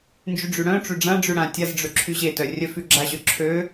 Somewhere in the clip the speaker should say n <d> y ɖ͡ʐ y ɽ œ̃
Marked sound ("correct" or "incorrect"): incorrect